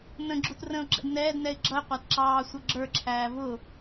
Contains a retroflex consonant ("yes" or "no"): no